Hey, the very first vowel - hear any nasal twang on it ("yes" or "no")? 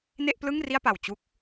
no